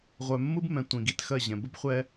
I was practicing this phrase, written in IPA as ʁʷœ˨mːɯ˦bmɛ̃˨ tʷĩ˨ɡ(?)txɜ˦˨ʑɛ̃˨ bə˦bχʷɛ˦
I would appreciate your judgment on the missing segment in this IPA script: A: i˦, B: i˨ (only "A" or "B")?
B